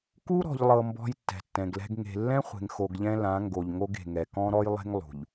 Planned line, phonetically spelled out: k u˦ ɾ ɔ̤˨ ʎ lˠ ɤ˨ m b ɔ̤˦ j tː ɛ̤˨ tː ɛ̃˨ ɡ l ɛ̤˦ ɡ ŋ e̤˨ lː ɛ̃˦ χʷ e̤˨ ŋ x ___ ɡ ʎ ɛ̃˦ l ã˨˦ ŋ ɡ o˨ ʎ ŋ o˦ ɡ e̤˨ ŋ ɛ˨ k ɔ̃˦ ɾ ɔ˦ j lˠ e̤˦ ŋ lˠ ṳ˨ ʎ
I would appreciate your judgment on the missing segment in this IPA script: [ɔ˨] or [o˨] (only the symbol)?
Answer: o˨